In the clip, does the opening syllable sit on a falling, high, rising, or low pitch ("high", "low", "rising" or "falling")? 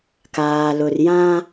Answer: low